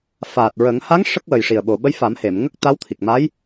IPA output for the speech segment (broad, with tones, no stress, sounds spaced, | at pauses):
f aː˨˩ t̚ ɹ ə˨˩˦ ŋ h a˧˥ ŋ ʂ ə˦˥ k̚ w ə˨˩ j ʂ i˨˩ ə̯ ɓ o˨˩ ɓ ə˧˥ j f a˨˩˦ m h e˨˩˨ m ŋ ə˦˥ k̚ t̪ a˧˥ w t̪ʰ i˨˩ k̚ m a˧˥ j